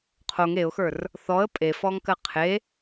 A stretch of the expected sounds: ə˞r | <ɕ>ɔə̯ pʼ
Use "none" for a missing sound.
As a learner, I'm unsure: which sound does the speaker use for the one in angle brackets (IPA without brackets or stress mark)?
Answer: θ